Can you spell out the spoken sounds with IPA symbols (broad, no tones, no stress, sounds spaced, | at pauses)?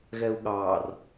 ɣ ɛ u̯ ɠ ɑ r